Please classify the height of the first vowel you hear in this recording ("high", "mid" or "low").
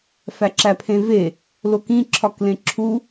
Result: low